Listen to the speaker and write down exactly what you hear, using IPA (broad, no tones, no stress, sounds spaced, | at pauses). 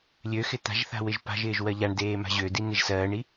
lʲ ø x ɪ t̪ a̤ ʒ θ a̤ w ɪ ʒ p a̤ ʒ ɪː ʒ w ɜ ʎ a ɳ d eː m a̤ ʑ ø d i n̪ e ʒ s ɜː ɳ i